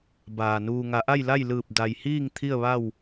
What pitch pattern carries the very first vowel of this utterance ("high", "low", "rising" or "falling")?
low